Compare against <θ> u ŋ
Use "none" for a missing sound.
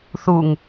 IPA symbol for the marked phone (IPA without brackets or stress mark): θ